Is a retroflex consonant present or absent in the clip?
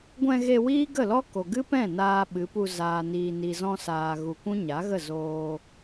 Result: absent